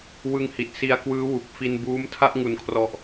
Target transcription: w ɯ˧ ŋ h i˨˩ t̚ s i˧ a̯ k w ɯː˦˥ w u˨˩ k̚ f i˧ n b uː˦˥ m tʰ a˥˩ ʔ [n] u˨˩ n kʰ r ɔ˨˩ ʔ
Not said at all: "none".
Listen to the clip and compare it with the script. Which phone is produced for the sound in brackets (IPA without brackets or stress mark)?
ŋ